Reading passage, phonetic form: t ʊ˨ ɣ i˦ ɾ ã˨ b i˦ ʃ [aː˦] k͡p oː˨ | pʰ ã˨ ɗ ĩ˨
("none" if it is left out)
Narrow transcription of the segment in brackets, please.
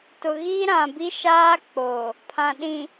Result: aː˦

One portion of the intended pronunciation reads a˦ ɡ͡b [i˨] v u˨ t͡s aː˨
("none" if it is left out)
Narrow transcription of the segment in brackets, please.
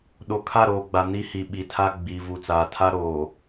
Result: i˨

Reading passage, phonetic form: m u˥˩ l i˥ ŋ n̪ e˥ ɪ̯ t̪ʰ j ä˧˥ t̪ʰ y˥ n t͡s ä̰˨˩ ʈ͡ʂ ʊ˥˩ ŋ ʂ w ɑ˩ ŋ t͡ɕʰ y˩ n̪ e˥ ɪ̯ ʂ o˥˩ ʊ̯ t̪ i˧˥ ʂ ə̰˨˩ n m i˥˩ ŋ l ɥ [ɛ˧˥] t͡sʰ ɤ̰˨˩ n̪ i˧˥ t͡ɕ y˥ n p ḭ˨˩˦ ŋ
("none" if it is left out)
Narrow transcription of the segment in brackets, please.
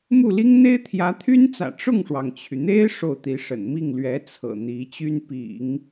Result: ɛ˧˥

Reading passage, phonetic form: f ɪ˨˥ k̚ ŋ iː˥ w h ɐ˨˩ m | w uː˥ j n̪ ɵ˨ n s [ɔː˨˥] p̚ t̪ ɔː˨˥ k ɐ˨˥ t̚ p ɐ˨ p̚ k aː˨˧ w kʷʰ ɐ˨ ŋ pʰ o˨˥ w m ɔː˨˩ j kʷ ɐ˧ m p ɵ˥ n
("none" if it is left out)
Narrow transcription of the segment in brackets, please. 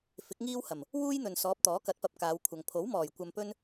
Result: ɔː˨˥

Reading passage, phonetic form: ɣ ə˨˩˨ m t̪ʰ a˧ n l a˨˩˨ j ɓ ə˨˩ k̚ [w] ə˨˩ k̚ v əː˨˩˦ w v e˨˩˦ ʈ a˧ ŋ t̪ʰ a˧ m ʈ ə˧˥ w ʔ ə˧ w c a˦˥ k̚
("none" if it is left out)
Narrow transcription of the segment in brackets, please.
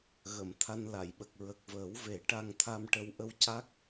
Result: ɹ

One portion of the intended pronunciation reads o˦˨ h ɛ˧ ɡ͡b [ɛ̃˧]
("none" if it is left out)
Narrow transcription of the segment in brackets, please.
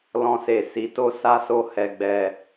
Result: ɛ˧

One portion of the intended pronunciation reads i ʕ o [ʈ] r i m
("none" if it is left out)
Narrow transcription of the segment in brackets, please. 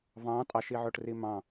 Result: ʈ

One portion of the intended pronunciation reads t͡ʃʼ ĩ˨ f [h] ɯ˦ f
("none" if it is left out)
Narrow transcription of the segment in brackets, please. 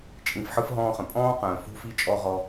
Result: ħ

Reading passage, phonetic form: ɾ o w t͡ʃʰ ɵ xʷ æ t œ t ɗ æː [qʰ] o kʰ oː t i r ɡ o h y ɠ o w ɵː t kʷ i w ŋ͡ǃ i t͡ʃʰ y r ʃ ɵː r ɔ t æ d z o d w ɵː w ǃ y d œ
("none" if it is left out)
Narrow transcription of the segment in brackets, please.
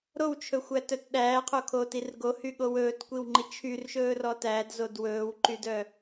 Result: qʰ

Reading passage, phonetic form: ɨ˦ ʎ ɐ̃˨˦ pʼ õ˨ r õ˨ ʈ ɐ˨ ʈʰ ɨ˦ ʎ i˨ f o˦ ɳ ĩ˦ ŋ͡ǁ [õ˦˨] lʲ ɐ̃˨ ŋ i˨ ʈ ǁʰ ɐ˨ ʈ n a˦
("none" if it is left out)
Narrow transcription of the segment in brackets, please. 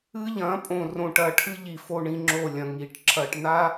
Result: o˦˨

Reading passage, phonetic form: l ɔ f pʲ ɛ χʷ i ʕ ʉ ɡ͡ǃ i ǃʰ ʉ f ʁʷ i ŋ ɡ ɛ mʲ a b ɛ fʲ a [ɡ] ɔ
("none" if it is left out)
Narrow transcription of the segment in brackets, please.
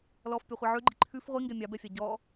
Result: ɟ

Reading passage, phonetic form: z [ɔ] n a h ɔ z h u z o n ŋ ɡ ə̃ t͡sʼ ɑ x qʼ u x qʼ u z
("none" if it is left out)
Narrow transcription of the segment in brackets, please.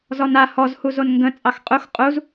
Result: ɔ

